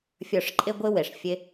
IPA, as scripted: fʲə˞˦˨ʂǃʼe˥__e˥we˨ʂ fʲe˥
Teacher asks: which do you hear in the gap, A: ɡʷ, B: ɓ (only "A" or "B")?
A